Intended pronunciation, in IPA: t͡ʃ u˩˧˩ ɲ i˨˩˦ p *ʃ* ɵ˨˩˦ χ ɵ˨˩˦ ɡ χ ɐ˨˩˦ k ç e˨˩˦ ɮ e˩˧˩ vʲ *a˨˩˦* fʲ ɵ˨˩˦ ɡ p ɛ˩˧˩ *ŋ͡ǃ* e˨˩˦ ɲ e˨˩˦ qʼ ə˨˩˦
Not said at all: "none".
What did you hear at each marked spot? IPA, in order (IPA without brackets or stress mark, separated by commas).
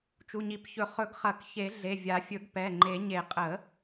ç, a˨˩˦, ŋ͡ǃ